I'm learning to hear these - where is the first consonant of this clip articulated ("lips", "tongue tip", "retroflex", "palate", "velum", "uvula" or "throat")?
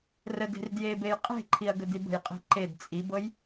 tongue tip